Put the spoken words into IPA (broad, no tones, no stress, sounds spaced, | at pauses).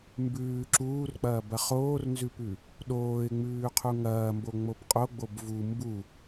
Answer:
m b ʉː ǁ uː r k͡p ɐː b ɐ χ oː r n z ʉ p ʉ | ɗ oː ɪ̯ ŋ͡m ʉː qʰ u ŋ ɐː m b o ŋ͡m o b qʼ o ɡ͡b o b v u m b u